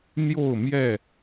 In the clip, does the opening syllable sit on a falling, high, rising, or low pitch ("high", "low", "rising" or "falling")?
falling